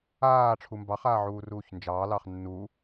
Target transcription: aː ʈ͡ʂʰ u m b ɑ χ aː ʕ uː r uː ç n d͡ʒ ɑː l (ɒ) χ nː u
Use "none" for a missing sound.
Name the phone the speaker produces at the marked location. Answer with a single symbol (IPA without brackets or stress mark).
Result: ɑ